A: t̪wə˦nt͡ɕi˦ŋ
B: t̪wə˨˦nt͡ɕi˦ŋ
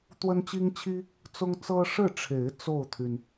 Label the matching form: A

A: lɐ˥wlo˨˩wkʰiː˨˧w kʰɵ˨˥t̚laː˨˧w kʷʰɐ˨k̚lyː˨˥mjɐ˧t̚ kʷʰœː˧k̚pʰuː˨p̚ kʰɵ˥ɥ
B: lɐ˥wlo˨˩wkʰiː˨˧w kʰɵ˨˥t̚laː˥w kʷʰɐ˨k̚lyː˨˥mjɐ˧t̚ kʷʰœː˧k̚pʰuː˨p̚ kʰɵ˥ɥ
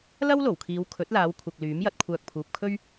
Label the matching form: A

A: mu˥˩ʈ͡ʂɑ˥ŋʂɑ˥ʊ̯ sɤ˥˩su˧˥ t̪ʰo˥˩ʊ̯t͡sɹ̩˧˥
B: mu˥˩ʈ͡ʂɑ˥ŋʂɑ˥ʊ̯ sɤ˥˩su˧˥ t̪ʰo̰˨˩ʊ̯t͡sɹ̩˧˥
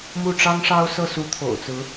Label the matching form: B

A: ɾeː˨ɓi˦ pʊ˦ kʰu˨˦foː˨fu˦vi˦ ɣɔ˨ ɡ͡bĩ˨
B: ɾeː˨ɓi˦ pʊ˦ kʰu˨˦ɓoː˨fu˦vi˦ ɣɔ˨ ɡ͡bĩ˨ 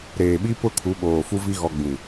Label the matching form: B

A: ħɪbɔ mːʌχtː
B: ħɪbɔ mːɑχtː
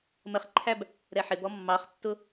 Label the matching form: B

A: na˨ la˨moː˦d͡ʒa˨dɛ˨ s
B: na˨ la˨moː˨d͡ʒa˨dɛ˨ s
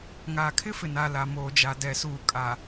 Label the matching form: B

